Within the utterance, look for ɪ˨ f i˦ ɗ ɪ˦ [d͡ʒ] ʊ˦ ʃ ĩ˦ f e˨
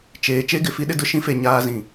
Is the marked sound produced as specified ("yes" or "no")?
no